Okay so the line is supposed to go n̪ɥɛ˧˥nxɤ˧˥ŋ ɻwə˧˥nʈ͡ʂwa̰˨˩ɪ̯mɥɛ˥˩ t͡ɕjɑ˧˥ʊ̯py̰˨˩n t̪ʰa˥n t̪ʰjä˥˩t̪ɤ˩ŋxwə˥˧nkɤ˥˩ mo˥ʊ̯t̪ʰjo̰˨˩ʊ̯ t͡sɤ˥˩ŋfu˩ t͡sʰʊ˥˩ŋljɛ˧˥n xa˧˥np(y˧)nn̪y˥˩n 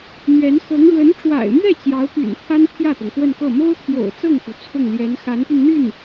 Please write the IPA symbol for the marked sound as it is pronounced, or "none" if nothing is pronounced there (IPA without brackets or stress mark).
y˧